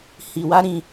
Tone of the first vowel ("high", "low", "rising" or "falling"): low